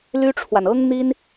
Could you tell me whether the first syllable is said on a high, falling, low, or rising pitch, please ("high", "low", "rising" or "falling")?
high